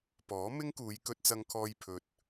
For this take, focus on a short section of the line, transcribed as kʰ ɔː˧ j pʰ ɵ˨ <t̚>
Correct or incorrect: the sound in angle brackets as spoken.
correct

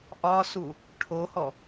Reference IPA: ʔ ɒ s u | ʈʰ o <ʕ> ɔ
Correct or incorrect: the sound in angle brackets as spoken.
incorrect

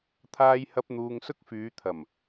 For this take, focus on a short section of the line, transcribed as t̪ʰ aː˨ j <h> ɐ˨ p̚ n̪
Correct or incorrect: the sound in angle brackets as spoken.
correct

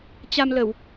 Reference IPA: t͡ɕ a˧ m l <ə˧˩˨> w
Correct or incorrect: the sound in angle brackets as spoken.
correct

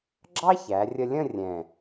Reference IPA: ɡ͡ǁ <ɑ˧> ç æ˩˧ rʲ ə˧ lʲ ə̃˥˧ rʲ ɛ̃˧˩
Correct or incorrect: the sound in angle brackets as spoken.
incorrect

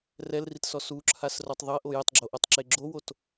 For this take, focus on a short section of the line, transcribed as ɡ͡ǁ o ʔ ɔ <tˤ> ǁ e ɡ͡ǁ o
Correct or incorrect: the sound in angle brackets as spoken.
correct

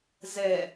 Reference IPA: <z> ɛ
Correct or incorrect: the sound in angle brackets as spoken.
correct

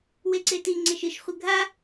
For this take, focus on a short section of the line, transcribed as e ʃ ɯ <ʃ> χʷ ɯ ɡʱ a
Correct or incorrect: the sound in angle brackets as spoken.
correct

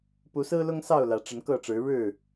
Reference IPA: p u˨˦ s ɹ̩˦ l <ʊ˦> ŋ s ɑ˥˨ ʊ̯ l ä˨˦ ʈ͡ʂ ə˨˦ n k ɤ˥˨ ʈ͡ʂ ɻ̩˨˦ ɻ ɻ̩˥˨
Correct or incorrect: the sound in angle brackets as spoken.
correct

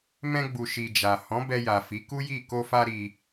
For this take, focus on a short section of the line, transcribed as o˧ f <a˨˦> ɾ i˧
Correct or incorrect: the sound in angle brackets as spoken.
incorrect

